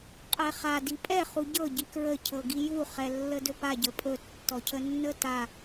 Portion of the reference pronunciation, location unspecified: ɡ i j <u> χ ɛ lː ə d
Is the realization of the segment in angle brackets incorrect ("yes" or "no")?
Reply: no